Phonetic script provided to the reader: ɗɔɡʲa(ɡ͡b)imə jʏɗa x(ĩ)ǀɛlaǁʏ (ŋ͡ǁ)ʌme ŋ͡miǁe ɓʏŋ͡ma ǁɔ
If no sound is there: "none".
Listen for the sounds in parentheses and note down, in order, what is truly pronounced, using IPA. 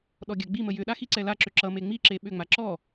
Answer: ɡ͡b, i, ǁ

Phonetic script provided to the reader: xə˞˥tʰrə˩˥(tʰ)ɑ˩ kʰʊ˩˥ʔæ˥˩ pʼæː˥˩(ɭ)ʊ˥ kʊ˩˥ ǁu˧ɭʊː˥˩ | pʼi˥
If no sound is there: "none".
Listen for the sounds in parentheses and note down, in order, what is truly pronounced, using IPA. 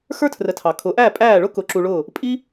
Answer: tʰ, ɭ

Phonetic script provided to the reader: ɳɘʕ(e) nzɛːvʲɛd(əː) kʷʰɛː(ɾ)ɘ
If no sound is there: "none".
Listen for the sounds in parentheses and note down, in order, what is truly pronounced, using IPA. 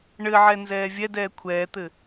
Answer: ɛ, ɛː, t̪

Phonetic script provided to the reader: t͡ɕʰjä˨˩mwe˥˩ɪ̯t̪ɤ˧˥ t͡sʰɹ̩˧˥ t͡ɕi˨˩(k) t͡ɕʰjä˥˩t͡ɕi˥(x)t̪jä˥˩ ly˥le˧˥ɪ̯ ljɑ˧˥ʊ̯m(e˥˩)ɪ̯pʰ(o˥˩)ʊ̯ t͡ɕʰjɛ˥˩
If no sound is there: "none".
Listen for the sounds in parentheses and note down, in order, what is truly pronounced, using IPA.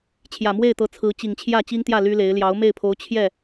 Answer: ŋ, ŋ, e˥˩, o˧˥

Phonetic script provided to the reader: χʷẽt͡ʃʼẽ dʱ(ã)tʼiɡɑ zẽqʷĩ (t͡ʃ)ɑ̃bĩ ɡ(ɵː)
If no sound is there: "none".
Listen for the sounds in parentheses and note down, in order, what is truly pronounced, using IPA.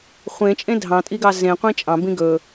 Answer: ɑ̃, t͡ʃʼ, ɵː

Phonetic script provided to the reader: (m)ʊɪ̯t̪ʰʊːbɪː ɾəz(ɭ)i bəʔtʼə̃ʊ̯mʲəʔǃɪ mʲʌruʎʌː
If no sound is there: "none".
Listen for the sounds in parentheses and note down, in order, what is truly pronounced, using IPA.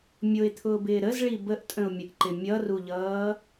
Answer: mʲ, ɭ

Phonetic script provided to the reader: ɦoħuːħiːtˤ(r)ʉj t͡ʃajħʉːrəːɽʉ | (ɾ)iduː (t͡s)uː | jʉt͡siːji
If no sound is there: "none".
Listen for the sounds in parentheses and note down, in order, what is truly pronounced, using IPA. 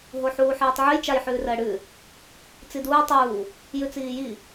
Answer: ʕ, t͡s, tˤ

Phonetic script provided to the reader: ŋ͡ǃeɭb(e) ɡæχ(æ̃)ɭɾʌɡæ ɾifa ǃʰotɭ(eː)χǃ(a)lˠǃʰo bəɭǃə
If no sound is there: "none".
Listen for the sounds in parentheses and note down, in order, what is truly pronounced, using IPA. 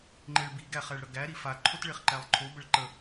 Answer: i, æ, e, æ

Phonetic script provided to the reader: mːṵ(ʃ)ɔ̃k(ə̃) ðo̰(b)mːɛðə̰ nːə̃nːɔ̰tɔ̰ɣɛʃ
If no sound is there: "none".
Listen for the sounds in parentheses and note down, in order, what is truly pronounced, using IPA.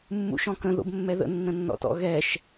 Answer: ʃ, ə̃, b

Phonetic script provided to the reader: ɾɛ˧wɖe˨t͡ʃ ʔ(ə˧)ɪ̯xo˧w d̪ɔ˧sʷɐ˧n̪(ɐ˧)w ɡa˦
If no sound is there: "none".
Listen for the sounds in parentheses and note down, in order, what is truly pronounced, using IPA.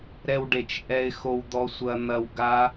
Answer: ɛ˧, ɐ˧

